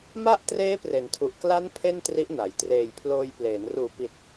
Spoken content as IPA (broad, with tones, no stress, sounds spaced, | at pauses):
m a˥˩ ʔ t r eː˦˥ p r e˩˦ n tʰ u˨˩ ʔ k l a˦˥ n pʰ e˥˩ n t r i˦˥ ʔ n a˩˦ j t r eː˨˩ j pʰ l oː˧ j p l eː˩˦ n r uː˨˩ p i˨˩ t̚